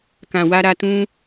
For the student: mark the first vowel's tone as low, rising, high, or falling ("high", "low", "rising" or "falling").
low